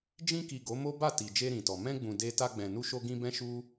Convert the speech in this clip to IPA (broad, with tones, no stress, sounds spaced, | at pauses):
d͡ʒ ĩ˧ k i˨ ɡ o˨˦ m o˦ b a˦˨ t i˨ d͡ʒ e˧ ɾ ĩ˨ t ɔ˨ m ɛ̃˧ ɡ͡b ũ˨ d e˧ t a˧ ɡ͡b ɛ̃˨ n u˧ ʃ o˧ ɡ ĩ˧ b ɛ̃˦ ʃ u˦